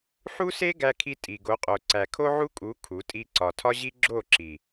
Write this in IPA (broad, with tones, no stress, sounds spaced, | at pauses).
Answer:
ħ u˦ s e˦ ɡ æ˧ kʰ i˧ tʼ i˨ ɡ o˨˦ qʼ o˨ ǀ æ˨ kʰ o˦ ʕ u˦ kʼ u˨˦ kʰ u˨˦ tʼ i˧ ǀ ɒ˨ tʰ ɒ˦ ʑ i˦ ɡ͡ǁ o˦˨ ǁ i˨